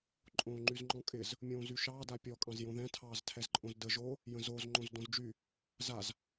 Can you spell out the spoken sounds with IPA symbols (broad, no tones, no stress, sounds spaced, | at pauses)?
ǃʼ õː ŋ͡ǃ y z ŋ͡ǃ ɔ̃ kʼ ɪ z | mʲ õː z y ʃ ɑː d a pʲ ɔ kʼ ɑ̃ z j õ ð ɛ̃ tʰ ɑː z tʰ ɛ z ǃʼ õ z d ə ʒ o | j ə̃ z o z ŋ͡ǃ õ z d õ z d͡ʒ y | z a z